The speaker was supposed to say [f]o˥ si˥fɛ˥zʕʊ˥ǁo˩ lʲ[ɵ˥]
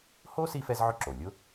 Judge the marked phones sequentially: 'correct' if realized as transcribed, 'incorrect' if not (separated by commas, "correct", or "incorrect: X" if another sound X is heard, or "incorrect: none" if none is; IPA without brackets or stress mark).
incorrect: h, incorrect: ʊ˥